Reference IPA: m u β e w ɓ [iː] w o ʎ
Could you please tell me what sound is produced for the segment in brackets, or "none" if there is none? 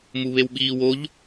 iː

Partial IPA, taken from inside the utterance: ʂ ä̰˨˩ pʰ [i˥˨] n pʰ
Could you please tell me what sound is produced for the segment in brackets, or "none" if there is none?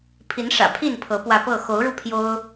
i˥˨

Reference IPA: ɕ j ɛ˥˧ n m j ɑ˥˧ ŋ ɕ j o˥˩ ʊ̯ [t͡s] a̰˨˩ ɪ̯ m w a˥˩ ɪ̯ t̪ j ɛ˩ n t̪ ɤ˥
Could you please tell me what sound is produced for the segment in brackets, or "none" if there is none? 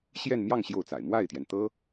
t͡s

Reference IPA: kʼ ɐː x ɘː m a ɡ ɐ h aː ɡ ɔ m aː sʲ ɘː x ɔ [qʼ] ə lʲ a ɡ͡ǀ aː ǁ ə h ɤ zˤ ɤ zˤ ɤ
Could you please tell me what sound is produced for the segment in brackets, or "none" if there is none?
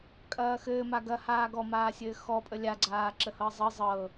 pʼ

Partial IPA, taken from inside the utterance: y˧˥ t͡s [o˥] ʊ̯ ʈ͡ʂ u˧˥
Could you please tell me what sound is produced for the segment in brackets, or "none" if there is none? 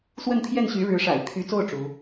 o˥˩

